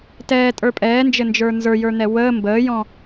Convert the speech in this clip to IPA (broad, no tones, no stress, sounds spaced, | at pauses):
t ɛː tʼ ə˞ pʼ ɛː n d͡ʒ ɘ n d͡ʒ ə˞ n z ə˞ j ə˞ n̪ ɛ w əː m b əː j ɔ̃